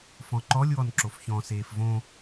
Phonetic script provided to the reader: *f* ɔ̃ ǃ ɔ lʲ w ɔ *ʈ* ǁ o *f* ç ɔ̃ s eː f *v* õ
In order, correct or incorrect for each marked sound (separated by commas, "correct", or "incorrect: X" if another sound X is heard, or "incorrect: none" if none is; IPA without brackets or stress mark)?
correct, incorrect: n, correct, correct